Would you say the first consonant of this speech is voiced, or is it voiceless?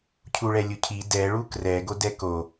voiceless